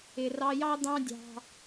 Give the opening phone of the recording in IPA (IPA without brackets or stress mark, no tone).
ɪ